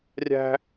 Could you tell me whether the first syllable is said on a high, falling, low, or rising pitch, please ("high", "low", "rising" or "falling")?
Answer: high